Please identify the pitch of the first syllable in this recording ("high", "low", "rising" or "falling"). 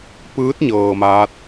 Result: rising